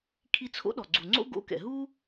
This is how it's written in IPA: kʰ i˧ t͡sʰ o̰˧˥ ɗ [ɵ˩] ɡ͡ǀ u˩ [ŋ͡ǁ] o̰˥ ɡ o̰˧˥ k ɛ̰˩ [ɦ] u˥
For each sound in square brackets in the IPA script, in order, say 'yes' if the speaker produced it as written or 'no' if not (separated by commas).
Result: no, no, yes